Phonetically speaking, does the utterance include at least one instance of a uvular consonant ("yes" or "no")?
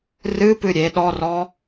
no